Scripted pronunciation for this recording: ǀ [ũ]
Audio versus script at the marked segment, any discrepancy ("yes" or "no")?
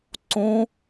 no